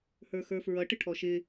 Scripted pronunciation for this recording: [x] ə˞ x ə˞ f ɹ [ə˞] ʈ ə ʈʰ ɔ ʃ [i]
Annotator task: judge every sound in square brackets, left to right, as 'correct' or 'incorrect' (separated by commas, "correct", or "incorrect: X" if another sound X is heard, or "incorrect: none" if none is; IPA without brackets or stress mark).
incorrect: h, incorrect: ʌ, incorrect: ɪ